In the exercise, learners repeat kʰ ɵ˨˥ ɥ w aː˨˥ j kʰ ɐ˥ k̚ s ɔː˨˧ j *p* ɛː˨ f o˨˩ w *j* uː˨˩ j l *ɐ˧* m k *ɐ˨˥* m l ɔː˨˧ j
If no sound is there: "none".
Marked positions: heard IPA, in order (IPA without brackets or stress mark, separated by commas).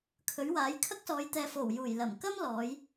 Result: t̪, j, ɐ˨˩, ɐ˥